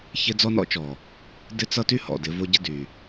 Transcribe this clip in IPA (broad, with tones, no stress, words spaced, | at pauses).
çɪ˦ d͡zɔ˦nɔ̰˦t͡ʃɔ˨ | dɪ˦t͡sʌ˦ty˦hɔ̰˨ dɪ˨˦vo˦ɟɪ˦ dy˨